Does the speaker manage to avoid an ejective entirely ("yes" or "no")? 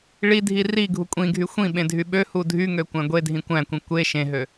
no